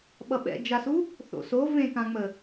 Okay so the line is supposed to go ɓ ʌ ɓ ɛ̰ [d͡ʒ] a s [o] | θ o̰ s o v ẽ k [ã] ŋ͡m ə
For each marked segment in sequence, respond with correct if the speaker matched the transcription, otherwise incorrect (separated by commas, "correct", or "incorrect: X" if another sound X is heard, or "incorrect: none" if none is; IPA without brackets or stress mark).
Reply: correct, incorrect: u, correct